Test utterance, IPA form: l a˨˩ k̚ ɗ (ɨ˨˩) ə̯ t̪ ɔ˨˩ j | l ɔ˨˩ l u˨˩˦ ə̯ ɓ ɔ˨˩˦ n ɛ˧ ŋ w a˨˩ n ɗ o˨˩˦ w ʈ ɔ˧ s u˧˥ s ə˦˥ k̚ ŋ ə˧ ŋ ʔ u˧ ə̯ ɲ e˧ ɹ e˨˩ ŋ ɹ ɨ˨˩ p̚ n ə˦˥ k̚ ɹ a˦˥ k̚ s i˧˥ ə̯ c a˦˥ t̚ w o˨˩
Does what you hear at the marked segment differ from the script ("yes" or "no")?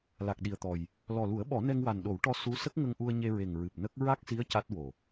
yes